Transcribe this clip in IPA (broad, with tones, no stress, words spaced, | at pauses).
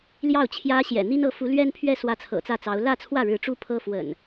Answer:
ljɑ˥˨ʊ̯t͡ɕʰjä˦ɕjɛ̰˨˩ n̪i˦nɤ˥˨ fu˨˦lɥɛ˦npʰɥɛ˥˨ swä˥˨t͡sʰɤ̰˨˩t͡sä˥˨t͡sɑ˨˦ʊ̯ lä˥˨t͡sʰwä˥˨ɻɻ̩˨˦ ʈ͡ʂu˦pʰɤ˦ fwə̰˨˩n